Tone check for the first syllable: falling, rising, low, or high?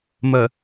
low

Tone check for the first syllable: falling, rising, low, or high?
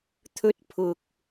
high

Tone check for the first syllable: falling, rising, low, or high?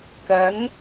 rising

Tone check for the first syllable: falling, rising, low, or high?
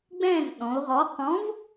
falling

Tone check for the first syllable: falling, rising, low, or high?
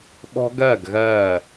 high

